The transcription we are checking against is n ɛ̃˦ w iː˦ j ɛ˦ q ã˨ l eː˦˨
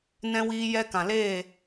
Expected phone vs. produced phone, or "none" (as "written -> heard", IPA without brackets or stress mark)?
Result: q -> k